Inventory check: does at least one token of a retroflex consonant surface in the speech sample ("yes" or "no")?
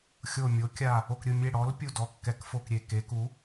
yes